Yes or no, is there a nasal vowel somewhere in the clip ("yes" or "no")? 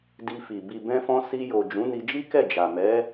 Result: yes